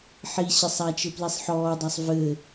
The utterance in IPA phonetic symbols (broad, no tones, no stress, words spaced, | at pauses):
ħi ɕɘsˤat͡ʃɘ plisˤħɔːdˤasˤ vɘ